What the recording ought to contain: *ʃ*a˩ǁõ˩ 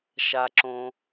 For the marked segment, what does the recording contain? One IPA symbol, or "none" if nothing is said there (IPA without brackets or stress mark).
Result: ʃ